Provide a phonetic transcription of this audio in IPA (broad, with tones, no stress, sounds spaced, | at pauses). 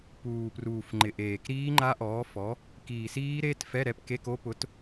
p uː˨˩ p r uː˨˩ f ŋ͡ǃ ɪ˨˩ ʔ eː˨˩ k ɾ iː˦˥ ŋ͡ǃ a˦˥ ʔ ɔː˨˥ f ɔ˨˥ | k iː˨˩ s iː˦˥ ɾ e˧˥˧ t f ɛ˧˥˧ ɾ ɛ˨˥ p k e˧˥˧ k o˦˥ p ʊ˨˥ t